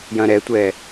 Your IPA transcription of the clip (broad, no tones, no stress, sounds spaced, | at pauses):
j ɐ̃ ɾ ɛ tʷ ɛ